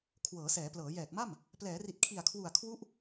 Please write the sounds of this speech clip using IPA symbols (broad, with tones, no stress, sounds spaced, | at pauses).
kʰ w ɤː˩˦ s ɛː˩˦ p l ɤː˩˦ j ɛː˨˩ k̚ m a˥˩ m | p l ɛː˩˦ r i˨˩ t̚ kʰ i˨˩ a̯ kʰ w u˨˩ a̯ kʰ w u˥˩ ʔ